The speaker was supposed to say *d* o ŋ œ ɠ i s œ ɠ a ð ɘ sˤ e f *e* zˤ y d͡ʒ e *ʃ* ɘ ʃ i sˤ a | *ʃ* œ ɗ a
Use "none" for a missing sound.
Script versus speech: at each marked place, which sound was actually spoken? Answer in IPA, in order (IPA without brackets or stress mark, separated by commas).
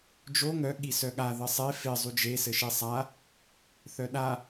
d͡ʒ, e, s, θ